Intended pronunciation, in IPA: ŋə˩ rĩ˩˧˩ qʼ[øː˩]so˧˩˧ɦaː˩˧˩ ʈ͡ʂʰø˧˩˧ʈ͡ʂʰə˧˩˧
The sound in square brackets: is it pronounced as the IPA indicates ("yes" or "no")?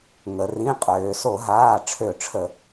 yes